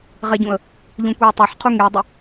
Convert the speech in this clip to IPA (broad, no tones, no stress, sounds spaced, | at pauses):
ʁ ɛ ɟ ũ ə̯ | ʎ ũ kʷ ɛː tˤ e ħ qʰ u ŋ e dˤ ʏ